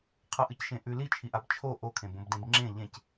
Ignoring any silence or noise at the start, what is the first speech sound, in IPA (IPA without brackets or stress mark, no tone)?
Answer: qʰ